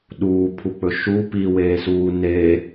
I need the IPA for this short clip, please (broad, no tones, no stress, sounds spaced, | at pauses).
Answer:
ɗ uː pʰ u k͡p ɵ ʃ u p i w eː s uː n e